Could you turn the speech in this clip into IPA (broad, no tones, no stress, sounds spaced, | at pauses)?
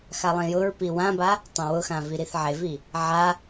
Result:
x a lˠ ĩ j ʊ ɹ p i w ã b a | tˤ ã w ʊ x ã v i ɾ i θ ʕ e v i | ʕ a